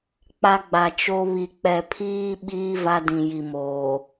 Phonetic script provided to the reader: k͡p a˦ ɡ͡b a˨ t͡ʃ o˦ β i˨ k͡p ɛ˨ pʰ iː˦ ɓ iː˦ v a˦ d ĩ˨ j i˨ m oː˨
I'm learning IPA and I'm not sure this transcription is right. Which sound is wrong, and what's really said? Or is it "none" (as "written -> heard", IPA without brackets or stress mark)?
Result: none